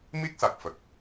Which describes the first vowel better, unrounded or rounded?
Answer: unrounded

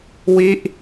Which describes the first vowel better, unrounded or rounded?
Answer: unrounded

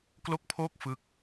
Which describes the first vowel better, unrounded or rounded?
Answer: rounded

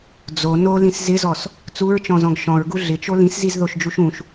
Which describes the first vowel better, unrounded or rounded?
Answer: rounded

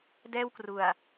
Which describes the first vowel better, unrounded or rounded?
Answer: unrounded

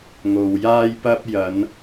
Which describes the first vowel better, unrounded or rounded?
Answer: rounded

